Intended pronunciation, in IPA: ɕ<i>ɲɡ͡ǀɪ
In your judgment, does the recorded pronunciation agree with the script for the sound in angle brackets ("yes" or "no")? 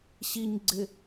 yes